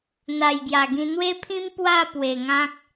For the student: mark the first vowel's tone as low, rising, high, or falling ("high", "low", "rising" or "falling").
low